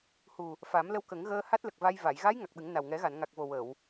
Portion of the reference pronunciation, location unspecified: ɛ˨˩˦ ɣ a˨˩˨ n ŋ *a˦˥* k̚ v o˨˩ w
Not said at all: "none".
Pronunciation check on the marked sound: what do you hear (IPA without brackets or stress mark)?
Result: a˨˩